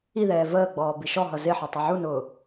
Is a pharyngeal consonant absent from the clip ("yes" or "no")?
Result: no